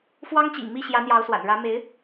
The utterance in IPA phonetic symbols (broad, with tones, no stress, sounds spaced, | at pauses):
f w ɑ˥ ŋ t͡ɕ ḭ˨˩ ŋ m i˥˩ ɕ j ä˧˥ n̪ j ɑ˧˥ ʊ̯ s w a̰˨˩ n ɻ ä˧˥ m e˧˥ ɪ̯